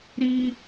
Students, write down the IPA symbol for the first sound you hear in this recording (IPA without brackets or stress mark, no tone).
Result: ɾ